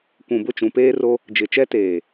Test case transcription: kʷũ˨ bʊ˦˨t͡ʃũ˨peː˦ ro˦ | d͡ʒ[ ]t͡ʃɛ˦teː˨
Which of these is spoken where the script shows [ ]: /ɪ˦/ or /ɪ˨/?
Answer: ɪ˨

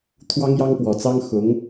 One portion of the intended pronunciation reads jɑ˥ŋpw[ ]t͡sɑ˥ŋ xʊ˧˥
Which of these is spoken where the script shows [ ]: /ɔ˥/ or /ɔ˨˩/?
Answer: ɔ˨˩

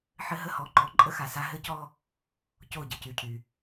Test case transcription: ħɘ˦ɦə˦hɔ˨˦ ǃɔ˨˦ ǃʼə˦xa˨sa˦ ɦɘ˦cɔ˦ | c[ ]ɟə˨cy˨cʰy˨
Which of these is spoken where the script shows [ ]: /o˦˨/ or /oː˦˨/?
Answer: o˦˨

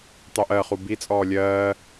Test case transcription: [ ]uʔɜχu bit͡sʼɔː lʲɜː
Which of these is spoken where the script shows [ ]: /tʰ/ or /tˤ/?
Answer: tˤ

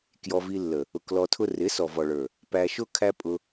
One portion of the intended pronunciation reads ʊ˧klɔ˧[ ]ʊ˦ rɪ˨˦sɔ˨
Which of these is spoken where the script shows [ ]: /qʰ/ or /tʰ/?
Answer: tʰ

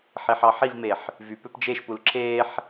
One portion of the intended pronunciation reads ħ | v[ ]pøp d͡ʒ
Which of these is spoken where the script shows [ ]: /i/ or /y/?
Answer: y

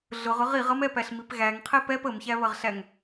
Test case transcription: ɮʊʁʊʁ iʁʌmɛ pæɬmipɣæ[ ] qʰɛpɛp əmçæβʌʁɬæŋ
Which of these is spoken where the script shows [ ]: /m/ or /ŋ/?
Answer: ŋ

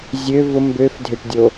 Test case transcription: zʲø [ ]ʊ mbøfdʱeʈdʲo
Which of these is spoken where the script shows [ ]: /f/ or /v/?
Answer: v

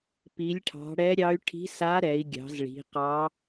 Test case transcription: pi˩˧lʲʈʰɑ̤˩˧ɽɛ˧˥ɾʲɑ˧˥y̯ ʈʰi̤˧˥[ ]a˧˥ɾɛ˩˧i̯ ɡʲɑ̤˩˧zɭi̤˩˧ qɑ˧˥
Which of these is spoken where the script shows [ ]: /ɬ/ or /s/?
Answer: s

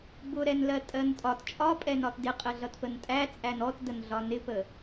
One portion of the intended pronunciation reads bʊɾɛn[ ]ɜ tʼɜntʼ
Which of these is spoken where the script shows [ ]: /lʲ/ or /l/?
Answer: l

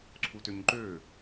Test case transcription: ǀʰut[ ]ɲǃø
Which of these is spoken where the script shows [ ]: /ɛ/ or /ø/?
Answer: ø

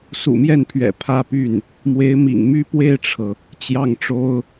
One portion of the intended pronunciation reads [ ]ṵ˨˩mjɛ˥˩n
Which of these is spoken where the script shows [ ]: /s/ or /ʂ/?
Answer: s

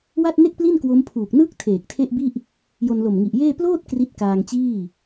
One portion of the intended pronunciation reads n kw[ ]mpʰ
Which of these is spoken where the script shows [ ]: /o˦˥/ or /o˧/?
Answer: o˦˥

